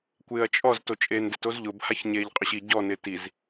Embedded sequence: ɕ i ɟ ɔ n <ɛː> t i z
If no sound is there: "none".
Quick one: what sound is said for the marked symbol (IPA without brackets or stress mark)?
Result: ɪː